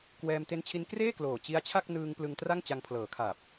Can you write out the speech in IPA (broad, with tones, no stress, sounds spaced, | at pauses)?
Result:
k w ɛː˧ m t e˦˥ n t͡ɕʰ i˦˥ n k r eː˥˩ k l oː˨˩ t͡ɕ i˦˥ a̯ t͡ɕʰ a˥˩ k̚ n ɯː˧ ŋ p l ɯ˧ ŋ t r a˥˩ ŋ t͡ɕ a˧ ŋ pʰ l ɤː˩˦ kʰ aː˨˩ p̚